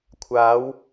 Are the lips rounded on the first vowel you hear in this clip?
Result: no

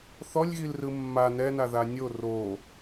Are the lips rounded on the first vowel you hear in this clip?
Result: yes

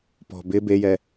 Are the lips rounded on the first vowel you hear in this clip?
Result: yes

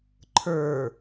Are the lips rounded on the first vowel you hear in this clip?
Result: no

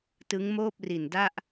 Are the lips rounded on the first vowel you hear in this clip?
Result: no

